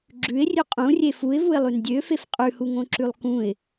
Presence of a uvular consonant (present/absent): present